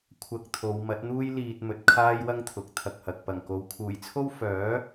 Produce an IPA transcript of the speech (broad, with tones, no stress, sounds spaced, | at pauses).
kʷʰ ɐ˧ k̚ t̪ʰ o˨˧ w m ɐ˨˥ t̚ n̪ uː˥ j l iː˧ t̚ m ɵ˨ t̚ kʰ aː˥ j w ɐ˥ ŋ t̪ʰ ʊ˨ k̚ t̪ʰ ɐ˧ k̚ h ɐ˨ k̚ p ɐ˨˩ ŋ k o˨˧ w kʰ uː˨˩ j t͡sʰ o˥ w f œː˨˥